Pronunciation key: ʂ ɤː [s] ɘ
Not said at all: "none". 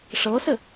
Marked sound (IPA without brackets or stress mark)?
s